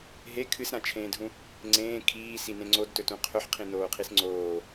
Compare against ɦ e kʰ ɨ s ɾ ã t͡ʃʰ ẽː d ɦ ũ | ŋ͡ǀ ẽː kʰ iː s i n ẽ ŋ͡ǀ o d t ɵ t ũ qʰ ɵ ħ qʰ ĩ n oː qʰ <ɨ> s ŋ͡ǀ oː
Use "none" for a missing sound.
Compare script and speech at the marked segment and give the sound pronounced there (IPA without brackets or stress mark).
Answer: i